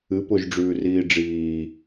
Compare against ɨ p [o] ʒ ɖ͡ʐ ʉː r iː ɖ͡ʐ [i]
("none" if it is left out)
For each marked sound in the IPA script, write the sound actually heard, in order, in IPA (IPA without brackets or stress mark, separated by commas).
o, iː